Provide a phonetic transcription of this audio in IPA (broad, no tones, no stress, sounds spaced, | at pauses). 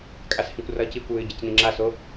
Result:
kʼ a s h ĩ kʷ r ʌː c i kʷ w ɨː ɟ e c n ĩ ŋ͡ǁ a s o